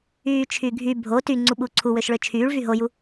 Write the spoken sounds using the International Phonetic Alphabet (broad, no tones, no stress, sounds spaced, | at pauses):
yː t͡ʃʰ y ɡʱ y bʱ o t y ŋ͡ǀ u ɓ u ǀʰ u w ø ʃ ɭ ø t͡ʃʰ yː ɭ v y ɦ o j u